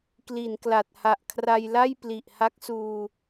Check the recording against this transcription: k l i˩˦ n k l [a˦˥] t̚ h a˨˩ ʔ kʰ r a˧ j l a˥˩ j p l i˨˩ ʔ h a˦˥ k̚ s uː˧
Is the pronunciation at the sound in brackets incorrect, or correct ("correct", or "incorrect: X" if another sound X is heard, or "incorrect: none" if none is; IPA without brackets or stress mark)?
incorrect: a˨˩